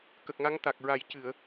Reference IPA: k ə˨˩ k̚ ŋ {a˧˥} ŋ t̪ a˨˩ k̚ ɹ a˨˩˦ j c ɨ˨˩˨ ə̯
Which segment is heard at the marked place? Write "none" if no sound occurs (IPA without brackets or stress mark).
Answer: a˧˥